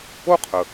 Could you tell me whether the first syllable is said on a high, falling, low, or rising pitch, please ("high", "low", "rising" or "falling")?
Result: high